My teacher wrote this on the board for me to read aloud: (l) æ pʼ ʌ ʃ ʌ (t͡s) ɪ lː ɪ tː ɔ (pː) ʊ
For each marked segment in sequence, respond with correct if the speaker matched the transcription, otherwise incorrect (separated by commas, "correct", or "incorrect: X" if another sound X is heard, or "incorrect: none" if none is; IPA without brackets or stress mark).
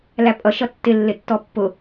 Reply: correct, incorrect: tː, correct